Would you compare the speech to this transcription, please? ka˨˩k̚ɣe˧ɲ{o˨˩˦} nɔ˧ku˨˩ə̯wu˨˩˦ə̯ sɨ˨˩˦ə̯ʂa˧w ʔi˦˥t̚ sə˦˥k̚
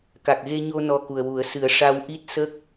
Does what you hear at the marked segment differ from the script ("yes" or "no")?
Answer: yes